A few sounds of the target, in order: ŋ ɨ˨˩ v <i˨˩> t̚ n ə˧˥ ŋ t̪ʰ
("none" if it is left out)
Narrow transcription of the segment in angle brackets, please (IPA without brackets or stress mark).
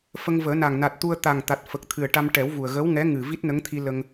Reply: i˦˥